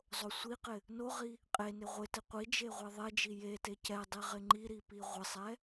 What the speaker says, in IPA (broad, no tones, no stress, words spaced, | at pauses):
zˤosʷiqɪ | noʁi | qʼenɪ ʁʷɪtɪ qʷid͡ʒe ʁʷeðˤed͡ʒi jete cɛ dˤiʁɪŋ͡ǃiɾi piʁʷɪsˤɛ